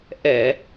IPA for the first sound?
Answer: ʔ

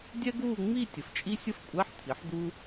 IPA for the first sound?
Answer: dʲ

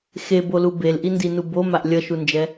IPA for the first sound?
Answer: x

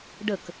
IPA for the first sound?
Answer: ɖ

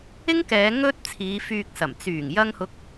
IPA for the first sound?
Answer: ɪ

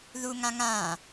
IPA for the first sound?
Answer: ð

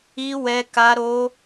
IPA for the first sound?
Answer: i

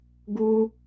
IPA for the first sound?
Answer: ɡ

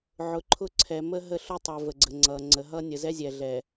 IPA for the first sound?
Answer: ʕ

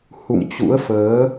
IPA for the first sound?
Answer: h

